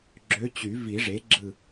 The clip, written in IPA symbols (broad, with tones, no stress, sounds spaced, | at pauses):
ɡ͡ǁ ø˧˥ t͡ɕ y˨˩˦ v i˨˩˦ ʐ e˩˥ ɡ͡ǁ ɯ˧˩